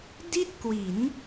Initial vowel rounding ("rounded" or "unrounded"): unrounded